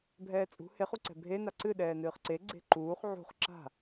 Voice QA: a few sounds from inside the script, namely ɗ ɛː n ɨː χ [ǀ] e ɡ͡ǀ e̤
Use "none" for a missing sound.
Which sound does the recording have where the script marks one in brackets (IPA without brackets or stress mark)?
ǀ